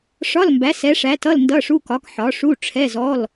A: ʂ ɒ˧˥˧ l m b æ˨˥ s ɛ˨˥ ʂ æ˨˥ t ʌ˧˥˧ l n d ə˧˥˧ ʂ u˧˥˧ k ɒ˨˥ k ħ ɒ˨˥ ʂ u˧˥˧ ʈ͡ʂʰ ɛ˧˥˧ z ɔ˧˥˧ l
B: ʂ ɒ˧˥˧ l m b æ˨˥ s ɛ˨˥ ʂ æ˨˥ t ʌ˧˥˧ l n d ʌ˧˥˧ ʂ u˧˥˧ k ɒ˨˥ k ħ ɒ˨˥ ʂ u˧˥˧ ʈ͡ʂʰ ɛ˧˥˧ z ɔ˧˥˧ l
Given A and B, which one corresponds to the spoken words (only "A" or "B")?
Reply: B